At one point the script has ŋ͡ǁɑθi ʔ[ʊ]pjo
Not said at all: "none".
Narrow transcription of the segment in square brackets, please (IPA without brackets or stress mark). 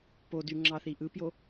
ɯ